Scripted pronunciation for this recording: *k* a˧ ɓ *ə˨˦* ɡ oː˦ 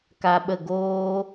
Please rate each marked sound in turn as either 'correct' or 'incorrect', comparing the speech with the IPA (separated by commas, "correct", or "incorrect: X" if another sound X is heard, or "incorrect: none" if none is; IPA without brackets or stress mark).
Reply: correct, incorrect: ə˦˨